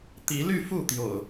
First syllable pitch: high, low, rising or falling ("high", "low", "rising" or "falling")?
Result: rising